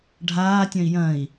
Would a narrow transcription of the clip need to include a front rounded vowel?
yes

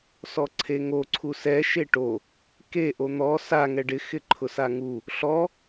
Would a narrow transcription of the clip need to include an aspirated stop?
yes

